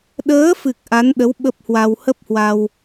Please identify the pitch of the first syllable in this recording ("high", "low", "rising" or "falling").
rising